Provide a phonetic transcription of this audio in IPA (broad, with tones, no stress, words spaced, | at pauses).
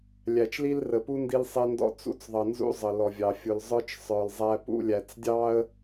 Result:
lʲæ˨t͡ʃli˦lrə˨pu˦ ndi˦lsˤɛ˦ndɔ̰˦ t͡sṵ˦t͡sðˤʌ˨nzṵ˦ zˤə˨lɔ˨vʲɑ˨ fʲʊ˨lzˤə˞˦t͡ʃ sˤə˞˨l zˤæ˦pṵ˦ lʲæ˨t͡sdʲɑ˦ə̯